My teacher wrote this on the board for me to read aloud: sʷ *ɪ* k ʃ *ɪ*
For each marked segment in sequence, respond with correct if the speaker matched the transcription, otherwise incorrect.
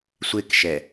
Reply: correct, incorrect

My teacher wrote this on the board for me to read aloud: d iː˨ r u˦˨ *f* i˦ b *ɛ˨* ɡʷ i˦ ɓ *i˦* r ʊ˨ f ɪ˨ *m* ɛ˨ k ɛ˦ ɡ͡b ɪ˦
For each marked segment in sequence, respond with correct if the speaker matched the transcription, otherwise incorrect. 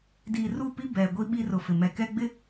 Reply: incorrect, correct, correct, correct

